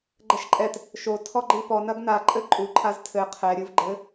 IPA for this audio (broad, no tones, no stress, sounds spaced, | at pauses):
ɡ͡ǃ ɛ ʃ ǃʼ ɛ t | ʃ o tʰ ɔ ɡ͡ǃ i p ɔ n ɐ ɡ n a ǃʼ ɘ ǃʼ u ǃʰ a z tʰ ɘ qʰ ɛ ɾʲ ɨ v ɡ͡ǃ ɘ